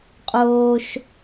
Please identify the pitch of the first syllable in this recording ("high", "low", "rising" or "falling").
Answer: high